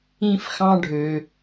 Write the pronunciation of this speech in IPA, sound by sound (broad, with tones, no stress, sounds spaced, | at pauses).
ĩ˧ f x ɑ̃˧ ɖʱ ø˩